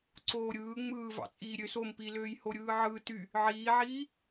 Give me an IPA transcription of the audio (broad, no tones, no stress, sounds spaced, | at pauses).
ǀ oː ɾʲ ɯː ŋ͡m ɯː v ɑ̰ t͡sʼ iː ɾʲ ø s o m p i l øː j h o ɾʲ ɯː ʕ ɯ t y | ʕ iː ʕ iː